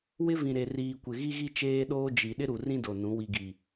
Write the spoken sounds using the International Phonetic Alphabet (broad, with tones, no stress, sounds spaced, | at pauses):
w ɪ˦ v ĩ˨ ɾ e˨ r iː˨ kʷ ɪ˨ ɣ i˦ ɣ i˦ t͡ʃ eː˦ ɗ oː˦ d͡ʒ i˨ ɗ ɪ˦ ɾ u˨ r ĩ˦ d o˨ n ũ˨˦ w i˨ ɡ i˨